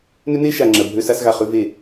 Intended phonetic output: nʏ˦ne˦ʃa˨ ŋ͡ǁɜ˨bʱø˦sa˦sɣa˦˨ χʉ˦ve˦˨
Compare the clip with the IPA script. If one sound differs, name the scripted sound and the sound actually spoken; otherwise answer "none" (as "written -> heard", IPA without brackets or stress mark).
none